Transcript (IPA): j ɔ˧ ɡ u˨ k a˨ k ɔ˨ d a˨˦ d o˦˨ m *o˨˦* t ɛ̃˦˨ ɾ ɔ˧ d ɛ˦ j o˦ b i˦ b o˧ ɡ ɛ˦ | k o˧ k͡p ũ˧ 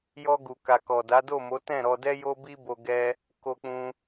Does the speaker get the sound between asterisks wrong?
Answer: no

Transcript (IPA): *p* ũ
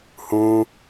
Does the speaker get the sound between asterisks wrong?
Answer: yes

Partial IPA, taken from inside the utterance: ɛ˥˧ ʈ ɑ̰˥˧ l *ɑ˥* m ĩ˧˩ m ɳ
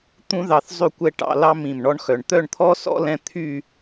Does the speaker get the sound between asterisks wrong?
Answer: no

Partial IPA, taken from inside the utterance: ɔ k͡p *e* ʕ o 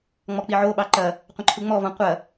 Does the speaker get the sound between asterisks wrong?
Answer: yes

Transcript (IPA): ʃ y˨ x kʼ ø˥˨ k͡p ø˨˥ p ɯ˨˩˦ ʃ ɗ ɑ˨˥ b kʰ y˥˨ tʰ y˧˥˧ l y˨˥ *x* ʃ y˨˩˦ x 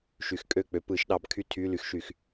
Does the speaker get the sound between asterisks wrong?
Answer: no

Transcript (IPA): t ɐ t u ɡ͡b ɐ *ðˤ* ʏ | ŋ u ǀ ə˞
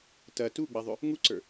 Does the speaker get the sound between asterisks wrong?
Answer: no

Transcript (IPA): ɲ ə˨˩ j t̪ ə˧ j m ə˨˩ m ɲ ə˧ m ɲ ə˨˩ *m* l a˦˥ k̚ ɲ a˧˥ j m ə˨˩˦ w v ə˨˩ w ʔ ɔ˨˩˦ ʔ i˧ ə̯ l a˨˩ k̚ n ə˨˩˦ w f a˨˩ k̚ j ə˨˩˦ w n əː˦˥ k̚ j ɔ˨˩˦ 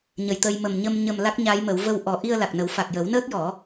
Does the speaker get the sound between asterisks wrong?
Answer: no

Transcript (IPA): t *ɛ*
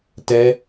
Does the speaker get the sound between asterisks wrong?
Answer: no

